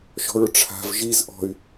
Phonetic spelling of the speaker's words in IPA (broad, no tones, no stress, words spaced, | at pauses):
ʃɔ̤ɹʈ͡ʂʰa̤v ʒiz ʔɔ̤y̯